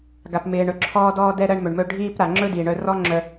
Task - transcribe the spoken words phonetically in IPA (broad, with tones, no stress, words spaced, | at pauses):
ɡa˩pmɪː˩ ɳɵ˩ǁʰɔː˧dɔː˧ dɛ˧ ɾɜ˧ɳmɵ˩ɳmɵ˧ ɖʱiː˧pɾa˩ ŋ͡ǁɵ˥diː˩ɳœ˧ rɔ˥ŋ͡ǁœ˧